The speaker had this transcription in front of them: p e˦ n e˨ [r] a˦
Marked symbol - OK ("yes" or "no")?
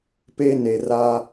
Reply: yes